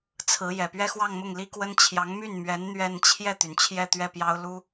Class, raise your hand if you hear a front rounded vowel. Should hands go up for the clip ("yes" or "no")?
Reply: yes